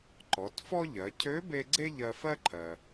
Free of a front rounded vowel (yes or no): no